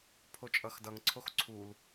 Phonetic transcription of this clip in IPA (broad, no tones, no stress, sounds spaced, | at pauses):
pʰ o t͡ʃʼ ʌ x d ʌ ŋ ǀʰ o x ǀʰ u l